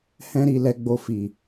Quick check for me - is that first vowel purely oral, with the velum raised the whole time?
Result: no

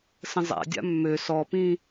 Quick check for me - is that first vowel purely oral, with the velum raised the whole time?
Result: no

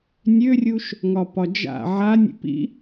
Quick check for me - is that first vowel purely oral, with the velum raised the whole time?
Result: yes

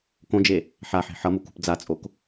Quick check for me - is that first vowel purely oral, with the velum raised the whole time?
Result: no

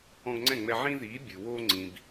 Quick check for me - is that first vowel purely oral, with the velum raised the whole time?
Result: no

